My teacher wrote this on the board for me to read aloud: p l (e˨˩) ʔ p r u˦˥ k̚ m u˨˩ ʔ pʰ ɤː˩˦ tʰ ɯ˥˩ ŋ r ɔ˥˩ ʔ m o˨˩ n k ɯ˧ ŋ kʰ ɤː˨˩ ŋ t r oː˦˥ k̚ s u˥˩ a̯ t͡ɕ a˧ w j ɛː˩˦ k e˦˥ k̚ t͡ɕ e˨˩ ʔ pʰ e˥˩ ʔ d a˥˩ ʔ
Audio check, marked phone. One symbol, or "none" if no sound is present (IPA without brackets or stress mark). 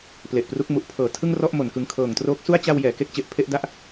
e˨˩